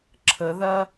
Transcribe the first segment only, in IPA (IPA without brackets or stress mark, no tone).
ǁʰ